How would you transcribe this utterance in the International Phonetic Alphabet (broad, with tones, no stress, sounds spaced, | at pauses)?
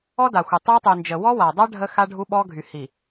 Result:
ɔ˦ d a˨ xʷ ə˨ tˤ e˦ tˤ y˨ n d͡ʒ ə˨ w ɔ˦ w a˨ dˤ a˦ ɖʱ ə˦ x a˦ ɖʱ u˦ ɓ ɔ˦ ɡʱ y˨ h i˨